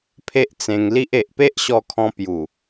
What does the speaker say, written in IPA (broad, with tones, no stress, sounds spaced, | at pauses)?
pʰ e˦ ʔ t͡s ẽ˧ ŋ l i˦ ʔ e˨ ʔ p e˦ ʔ ɕ ɔ˧ kʰ ɔ̃˧ p j u˨˩